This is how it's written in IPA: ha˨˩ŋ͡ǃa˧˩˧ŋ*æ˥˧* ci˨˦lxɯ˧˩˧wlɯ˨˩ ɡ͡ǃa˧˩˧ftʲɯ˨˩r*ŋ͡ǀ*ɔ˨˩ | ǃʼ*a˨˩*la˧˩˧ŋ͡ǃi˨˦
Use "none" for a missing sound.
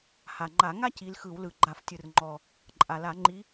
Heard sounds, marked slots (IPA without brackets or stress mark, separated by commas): a˥˧, ŋ͡ǃ, a˨˩